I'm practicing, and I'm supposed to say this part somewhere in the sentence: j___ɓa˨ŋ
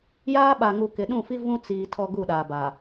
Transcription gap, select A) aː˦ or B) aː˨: A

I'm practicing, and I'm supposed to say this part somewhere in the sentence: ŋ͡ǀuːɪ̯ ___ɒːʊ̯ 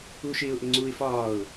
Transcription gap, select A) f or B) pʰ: A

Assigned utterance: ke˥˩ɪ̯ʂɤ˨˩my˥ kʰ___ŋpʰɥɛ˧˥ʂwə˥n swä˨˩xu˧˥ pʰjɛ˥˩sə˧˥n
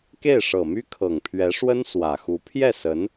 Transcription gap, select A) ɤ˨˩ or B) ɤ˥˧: A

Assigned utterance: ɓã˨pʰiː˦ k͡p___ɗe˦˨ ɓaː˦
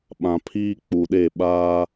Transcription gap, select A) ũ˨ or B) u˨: B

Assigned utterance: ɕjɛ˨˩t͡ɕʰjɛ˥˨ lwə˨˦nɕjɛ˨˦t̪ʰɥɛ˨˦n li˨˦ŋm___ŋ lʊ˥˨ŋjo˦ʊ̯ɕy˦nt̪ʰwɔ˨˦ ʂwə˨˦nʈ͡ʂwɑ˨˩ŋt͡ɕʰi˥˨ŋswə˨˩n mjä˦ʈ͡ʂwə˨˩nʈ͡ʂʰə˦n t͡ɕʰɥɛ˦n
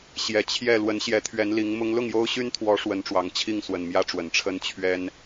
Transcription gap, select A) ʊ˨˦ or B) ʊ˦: B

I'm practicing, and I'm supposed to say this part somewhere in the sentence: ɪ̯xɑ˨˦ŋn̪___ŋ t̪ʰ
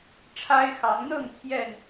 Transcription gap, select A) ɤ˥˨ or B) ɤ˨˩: A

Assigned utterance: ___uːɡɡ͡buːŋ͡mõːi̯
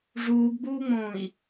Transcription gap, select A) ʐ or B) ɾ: A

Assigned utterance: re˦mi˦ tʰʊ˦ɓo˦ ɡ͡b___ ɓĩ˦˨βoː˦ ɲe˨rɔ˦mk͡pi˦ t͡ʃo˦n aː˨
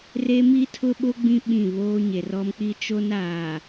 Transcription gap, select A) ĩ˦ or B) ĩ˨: A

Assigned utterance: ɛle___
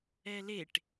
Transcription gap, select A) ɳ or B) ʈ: B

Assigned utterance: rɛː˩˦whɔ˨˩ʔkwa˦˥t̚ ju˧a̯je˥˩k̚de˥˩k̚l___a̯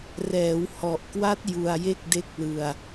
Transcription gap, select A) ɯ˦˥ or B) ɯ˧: B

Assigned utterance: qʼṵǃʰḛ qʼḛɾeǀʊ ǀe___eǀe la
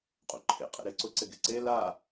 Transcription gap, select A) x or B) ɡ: B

